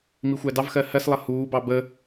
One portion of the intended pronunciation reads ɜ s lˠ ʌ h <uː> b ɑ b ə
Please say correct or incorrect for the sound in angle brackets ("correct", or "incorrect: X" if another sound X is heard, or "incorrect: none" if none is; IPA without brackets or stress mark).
correct